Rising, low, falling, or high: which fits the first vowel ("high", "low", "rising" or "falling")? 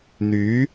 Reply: rising